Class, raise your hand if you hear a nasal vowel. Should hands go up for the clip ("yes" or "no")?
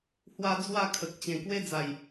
yes